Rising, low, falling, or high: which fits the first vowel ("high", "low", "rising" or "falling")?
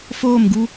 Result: falling